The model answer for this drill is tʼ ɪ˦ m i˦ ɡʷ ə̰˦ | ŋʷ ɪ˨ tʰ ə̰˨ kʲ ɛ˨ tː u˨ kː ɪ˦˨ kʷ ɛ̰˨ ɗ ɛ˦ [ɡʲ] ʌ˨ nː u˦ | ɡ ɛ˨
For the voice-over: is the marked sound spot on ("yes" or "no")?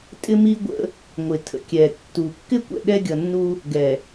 yes